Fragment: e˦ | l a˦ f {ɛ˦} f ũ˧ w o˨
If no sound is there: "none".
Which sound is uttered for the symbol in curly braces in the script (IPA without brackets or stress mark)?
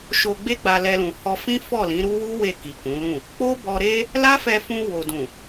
ɛ˧